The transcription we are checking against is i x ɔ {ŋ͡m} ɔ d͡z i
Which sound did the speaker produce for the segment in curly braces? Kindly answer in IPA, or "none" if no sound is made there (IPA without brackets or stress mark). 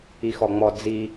ŋ͡m